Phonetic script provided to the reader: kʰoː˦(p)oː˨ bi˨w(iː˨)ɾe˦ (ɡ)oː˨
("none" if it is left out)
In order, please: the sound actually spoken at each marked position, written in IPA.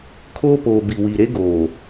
p, i˨, ɡ

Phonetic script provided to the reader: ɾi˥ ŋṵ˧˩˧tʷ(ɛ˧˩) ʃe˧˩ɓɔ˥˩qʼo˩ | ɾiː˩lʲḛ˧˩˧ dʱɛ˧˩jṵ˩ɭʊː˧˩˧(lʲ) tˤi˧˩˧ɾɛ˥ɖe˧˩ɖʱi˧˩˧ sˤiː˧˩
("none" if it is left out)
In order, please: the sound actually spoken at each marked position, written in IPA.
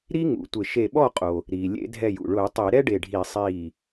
ɪ˧˩, none

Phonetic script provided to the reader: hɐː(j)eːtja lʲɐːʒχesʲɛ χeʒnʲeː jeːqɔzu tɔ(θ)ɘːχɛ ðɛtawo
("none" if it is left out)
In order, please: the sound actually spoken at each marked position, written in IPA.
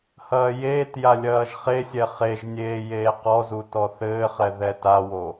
j, θ

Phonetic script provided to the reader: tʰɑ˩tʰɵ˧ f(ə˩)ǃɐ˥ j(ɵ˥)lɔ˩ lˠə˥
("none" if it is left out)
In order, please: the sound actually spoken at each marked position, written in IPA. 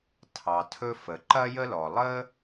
ə˩, ə˥

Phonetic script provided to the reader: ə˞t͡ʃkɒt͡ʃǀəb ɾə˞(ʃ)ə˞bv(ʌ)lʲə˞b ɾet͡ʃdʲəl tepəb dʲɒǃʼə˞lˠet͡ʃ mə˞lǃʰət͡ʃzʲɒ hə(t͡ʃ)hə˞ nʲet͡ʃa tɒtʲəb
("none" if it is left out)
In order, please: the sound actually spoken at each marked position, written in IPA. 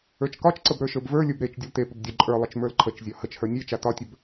ʃ, ə˞, t͡ʃ

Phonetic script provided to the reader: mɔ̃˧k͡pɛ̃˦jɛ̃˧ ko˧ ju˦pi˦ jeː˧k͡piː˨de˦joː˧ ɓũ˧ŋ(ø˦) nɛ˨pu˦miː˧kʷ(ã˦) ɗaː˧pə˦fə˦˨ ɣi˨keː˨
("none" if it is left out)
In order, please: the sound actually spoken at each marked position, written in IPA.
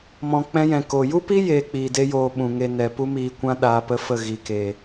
e˦, ã˦

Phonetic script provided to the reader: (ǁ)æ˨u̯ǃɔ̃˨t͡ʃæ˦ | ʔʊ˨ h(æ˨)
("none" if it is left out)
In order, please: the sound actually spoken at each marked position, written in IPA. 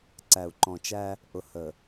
ǀ, ə˨

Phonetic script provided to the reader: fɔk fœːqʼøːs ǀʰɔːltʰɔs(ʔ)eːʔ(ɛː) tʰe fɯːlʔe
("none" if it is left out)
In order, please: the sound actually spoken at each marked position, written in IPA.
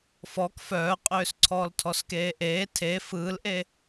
k, eː

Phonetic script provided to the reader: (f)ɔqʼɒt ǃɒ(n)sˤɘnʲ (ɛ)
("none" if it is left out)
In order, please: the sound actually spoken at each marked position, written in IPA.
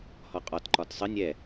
h, t, ɛ

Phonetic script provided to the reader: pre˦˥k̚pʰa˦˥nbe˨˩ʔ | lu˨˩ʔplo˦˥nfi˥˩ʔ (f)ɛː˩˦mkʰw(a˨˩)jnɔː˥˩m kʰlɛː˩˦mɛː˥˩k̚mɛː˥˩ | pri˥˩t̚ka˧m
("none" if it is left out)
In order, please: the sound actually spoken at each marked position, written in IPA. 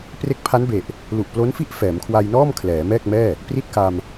f, a˧

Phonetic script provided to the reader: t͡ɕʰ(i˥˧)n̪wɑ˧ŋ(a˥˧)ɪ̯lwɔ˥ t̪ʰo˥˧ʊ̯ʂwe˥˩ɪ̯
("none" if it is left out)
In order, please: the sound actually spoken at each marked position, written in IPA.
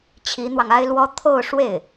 i˧˥, a˥

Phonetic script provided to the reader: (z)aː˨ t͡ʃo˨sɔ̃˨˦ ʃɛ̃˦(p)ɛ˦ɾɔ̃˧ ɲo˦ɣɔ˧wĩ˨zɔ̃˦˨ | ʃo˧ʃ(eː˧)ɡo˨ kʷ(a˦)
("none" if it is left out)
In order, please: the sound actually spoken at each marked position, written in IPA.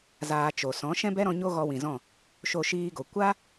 z, b, iː˧, a˦

